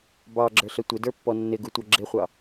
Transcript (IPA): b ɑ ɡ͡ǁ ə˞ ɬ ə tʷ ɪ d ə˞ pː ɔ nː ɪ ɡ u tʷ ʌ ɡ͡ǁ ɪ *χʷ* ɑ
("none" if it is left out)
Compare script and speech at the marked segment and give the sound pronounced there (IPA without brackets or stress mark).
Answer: χʷ